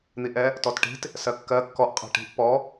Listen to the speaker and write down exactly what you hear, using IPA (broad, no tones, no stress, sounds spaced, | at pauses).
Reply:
n̪ i ʔ ɛ | t ɔ t ʈ i̤ t | s ɜ kː ɜ kː ɔ ʔ qʼ ɛ̤ ʈ i̤ ʔ p ɔ